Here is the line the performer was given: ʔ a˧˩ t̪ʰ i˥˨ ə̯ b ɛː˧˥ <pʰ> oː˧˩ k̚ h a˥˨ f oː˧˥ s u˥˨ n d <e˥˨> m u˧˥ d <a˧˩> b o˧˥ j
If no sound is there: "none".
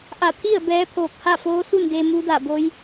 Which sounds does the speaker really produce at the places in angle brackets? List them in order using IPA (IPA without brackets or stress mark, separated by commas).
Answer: pʰ, e˧, a˧˩